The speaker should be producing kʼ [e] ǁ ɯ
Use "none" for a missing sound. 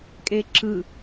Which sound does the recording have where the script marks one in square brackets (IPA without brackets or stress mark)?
e